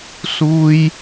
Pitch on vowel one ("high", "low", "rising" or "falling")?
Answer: high